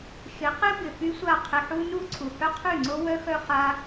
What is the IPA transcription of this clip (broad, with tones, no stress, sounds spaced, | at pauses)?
ʃ ɪ˨˦ q ɪ˦ b ɪ˨ f y˦ sʷ a˦˨ qʰ ɪ˧ ħ u˦ n u˦ ǀʰ u˨ h œ˦ qʰ y˦˨ ŋ͡ǀ o˦ w œ˦ x œ˦ χ a˦